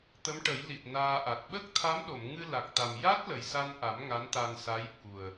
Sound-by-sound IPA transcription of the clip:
t̪ ə˧˥ m ʈ ə˨˩˦ j l i˨˩ t̚ n aː˧ ʔ a˨˩ t̚ ɓ ə˦˥ k̚ t̪ʰ a˧˥ m ɗ o˨˩˨ m ŋ ɨ˧ l a˨˩ k̚ t̪ a˨˩ m j a˦˥ t̚ l ə˨˩ j s a˧ n ʔ a˨˩˦ m ŋ a˧˥ n t̪ a˧ n s a˧˥ j ɓ u˨˩ ə̯

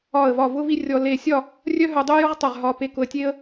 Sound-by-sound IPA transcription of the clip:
ɒ˧˩ ə̯ v ɒ˧˩ v ʊ˥ v i˥ rʲ ɔ˧ l e˧˩ sʲ ɒ˥˧ | rʲ œ˥ ɦ œ˧ dˤ ʊ˥ j ʊ˥ ʁ tˤ œ˧˩ ʁ ɦ ɒ˧ p e˧ k ʊ˧ ə̯ tʲ e˥ ə̯

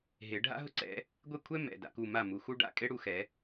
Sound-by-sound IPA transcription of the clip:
ɦ e˨˩˦ ɖʱ a̰˥ ɦ ʊ˥ ǀ ɛ̰˨˦ | ɡʷ e˥˩ kʷʰ ɛ˥ m ɛ̰˩˧˩ d a̰˨˦ k u˩˧˩ m a˥˩ m u˩˧˩ x u˥ ɖ a̰˩˧˩ kʼ e˥ ɽ u˩˧˩ x ɛ˨˩˦

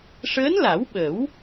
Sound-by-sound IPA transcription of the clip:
ʂ əː˧˥ n l a˨˩˦ w ɓ ə˨˩˦ w

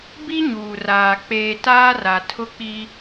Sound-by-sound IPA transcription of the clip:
b i˦ ɲ uː˨ r aː˨ k͡p eː˨ t aː˦ r a˨ tʰ ʊ˦ k͡p i˦

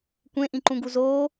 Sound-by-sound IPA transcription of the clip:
kʷ ẽ ʔ ĩ ǃ ũ ɡ u z oː

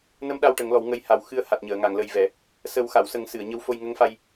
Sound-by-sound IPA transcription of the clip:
n ə˧˥ m ɗ a˧ w ʈ ə˨˩˦ ŋ l ɔ˨˩˦ w ŋ ə˧˥ j h a˨˩ w x ɨ˧˥ ə̯ h a˨˩ t̚ ɲ əː˨˩˨ ŋ a˨˩˨ ŋ l ə˨˩ j v ɛ˨˩˨ | s ə˨˩˦ w x a˨˩˨ w s ə˨˩˦ ŋ s ɨ˨˩˨ ə̯ ɲ ə˧˥ w f o˧ j ŋ ə˧˥ ŋ f a˧ j

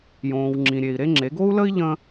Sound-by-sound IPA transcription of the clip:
j õː˨ w ŋ͡ǁ ĩ˨ ɾʲ e˨ i̯ ɾ e˦ ŋ͡ǁ e˨˦ ɡ o˦ u̯ l ə˦ i̯ ʎ ə̃˦

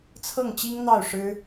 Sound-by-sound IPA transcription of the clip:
t͡sʰ ɤ˥˩ ŋ t͡ɕ i˥ ŋ n̪ ɑ˥˩ ʊ̯ ʂ ɻ̩˥

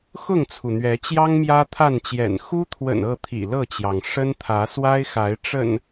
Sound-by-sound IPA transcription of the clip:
x ʊ˥˨ ŋ t͡sʰ u˩ n̪ ɥ ɛ˨˦ t͡ɕ j ɑ˦ ŋ m j ä˦ t̪ʰ a˥˨ n t͡ɕ j ɛ̰˨˩ n x u˦ t̪ʰ w ə̰˨˩ n ɤ˥˨ t̪ʰ ḭ˨˩ l ɤ˥˨ t͡ɕ j ɑ˩ ŋ ʂ ə˦ n t̪ʰ ä˨˦ s w a˦ ɪ̯ x a˨˦ ɪ̯ ʈ͡ʂ ə̰˨˩ n

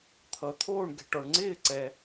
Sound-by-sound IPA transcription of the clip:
t̪ʰ ʌ˨ t̪ʰ oː˥˧ ɳ ɡ ɛ̤˨ ʈ ɔ˨ ɳ ŋ͡ǀ ɪː˥˧ ǀ ɛ˨

